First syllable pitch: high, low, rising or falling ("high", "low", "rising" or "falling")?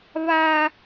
high